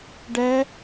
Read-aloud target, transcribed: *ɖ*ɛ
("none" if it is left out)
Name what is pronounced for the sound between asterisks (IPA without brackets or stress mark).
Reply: ɖ